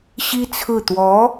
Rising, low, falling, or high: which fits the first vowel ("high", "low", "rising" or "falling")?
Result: high